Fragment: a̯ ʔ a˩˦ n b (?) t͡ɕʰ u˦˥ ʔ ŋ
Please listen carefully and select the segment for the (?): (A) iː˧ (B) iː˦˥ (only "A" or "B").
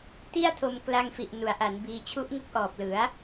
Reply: A